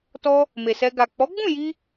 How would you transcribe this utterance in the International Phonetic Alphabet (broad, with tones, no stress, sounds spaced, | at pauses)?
t ɔ˧ | m e˨ s ɛ˧ ɡ a˨ k͡p ɔ˨˦ ɡ͡b ũ˦˨ j i˧